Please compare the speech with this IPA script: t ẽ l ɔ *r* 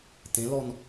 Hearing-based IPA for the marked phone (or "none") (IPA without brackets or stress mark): n